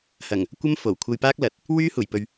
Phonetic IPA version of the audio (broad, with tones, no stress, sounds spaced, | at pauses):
h ɐ˨˩ ŋ | kʷ ɐ˥ m f o˨˩ w kʷʰ ɐ˧ j p aː˥ k̚ l ɐ˨˥ t̚ | w yː˥ h uː˨˩ j p ɵ˨ ɥ